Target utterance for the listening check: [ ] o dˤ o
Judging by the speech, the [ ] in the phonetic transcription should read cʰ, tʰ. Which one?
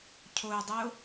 cʰ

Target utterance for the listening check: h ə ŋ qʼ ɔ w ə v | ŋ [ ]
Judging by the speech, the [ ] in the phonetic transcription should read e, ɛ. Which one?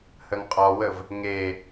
e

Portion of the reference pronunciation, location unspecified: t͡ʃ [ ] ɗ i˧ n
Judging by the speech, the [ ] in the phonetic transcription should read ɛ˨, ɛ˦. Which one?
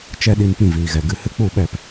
ɛ˦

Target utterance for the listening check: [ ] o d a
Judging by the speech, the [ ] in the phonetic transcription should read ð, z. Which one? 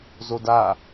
z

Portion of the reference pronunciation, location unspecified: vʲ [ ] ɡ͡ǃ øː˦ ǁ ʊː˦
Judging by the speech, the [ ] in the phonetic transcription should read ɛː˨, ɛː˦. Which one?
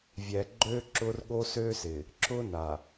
ɛː˨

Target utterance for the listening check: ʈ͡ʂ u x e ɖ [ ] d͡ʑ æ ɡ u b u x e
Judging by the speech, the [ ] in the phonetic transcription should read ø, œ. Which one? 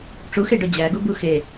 œ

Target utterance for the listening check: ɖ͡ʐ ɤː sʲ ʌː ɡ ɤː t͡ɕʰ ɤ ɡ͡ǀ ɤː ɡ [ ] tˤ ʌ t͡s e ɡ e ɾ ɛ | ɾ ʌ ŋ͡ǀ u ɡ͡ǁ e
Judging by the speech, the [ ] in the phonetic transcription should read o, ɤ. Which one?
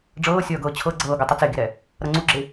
o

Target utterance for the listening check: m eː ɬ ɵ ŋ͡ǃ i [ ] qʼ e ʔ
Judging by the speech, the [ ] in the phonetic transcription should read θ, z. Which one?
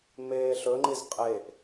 z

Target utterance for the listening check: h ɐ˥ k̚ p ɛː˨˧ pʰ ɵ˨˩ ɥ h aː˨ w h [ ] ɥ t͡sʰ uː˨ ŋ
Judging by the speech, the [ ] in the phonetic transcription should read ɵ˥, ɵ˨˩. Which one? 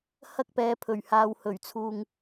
ɵ˨˩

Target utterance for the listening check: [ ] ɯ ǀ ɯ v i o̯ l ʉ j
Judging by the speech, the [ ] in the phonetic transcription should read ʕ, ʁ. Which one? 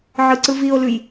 ʕ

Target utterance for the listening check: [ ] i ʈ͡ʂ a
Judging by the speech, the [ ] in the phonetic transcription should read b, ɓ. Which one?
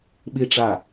ɓ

